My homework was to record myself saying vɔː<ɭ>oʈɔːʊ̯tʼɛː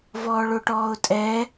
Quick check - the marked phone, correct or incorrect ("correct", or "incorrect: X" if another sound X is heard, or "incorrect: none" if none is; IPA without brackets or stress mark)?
correct